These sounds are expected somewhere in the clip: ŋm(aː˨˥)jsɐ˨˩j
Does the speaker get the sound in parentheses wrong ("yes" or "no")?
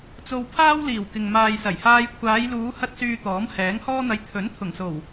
yes